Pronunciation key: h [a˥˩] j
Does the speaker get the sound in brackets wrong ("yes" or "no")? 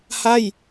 no